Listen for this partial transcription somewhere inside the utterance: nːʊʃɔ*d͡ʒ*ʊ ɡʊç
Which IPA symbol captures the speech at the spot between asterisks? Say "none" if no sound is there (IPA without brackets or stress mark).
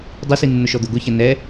d̪